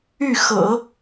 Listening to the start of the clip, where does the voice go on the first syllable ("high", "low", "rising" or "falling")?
falling